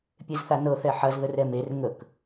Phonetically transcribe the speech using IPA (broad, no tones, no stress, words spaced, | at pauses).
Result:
pʲezθanɤ θɛħɐz ðərɛmer ŋək